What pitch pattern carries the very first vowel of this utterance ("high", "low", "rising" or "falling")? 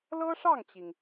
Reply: high